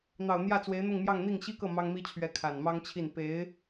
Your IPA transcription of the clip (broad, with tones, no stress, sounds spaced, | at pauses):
n̪ ɑ˨˩ ʊ̯ n̪ j ä˥˩ t͡s w e˧˥ ɪ̯ n̪ ʊ˥˧ ŋ m j ɑ˥˧ ŋ n̪ i˥˩ ŋ ɕ i˥ k ɤ˥˩ m ɑ˥ ŋ m i˥ t͡ɕʰ ɥ ɛ˧˥ kʰ a˨˩ n m ɑ˥ ŋ t͡ɕʰ i˥˩ n p e˧˥ ɪ̯